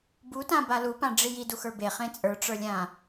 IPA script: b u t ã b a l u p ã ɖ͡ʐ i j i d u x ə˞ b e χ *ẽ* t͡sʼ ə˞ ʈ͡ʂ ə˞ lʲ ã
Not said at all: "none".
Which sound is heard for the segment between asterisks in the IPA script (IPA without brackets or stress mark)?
ẽ